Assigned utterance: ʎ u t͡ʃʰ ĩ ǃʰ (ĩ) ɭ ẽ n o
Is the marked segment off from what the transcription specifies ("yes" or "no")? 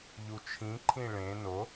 no